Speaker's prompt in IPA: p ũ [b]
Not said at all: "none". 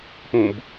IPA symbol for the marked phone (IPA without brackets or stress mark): b